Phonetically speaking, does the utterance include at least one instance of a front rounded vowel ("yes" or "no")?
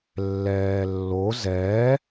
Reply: no